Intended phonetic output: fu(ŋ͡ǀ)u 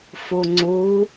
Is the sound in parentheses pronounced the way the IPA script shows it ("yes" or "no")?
yes